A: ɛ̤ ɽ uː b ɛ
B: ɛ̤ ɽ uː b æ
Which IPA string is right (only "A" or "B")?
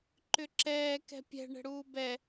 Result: A